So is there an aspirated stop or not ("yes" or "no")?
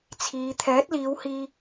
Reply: yes